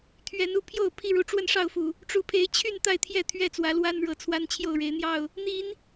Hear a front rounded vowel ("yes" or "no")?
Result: yes